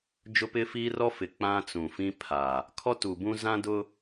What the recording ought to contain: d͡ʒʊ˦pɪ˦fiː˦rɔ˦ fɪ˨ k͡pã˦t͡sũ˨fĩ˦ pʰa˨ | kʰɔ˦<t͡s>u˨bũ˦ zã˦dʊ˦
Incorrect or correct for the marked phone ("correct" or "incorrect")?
incorrect